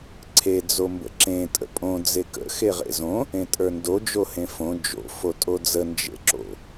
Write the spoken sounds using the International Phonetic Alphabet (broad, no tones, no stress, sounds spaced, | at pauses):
ǀʰ e d͡z o m b ə̰ ǁ ẽ tʼ ə̰ pʼ õ d͡z e k ə̰ x e ʁ ḛ z õ | ẽ tʼ ə˞ n d o d͡ʒ o h ẽ f õ d͡ʒ o̰ f o tʼ o d͡z ə n d͡ʒ ḛ ǁ o̰